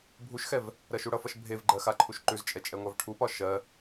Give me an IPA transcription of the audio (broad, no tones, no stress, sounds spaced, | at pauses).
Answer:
bʱ u ʃ x ɛ v | ɾ ɜ ʃ u ɽ ʌ f ʌ ʃ bʱ e v ɡ͡ǃ ɜ x a ǃʰ u ʃ ǃ ʉ z t͡ʃʼ ɛ t͡ʃʼ ɛ ŋʷ a v ʈʰ u p ɒ ʃ ɜ